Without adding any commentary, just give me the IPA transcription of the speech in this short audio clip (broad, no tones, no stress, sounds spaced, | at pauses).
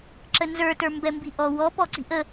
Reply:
ǁ ə n z ə˞ t ə˞ m b ɛ m b i ʔ ɔ w ɔ p ɔ ǀ i̤ ʔ ə